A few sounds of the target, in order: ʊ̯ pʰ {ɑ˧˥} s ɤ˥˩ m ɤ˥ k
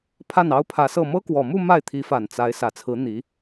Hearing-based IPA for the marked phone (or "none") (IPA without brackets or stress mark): ä˧˥